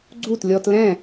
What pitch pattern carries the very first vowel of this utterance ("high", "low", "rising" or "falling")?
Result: falling